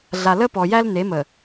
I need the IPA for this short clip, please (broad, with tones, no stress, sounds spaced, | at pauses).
ɮ a˨ l ə˦ p ɔ˨ j æ˦ l n e˨˦ m ə˨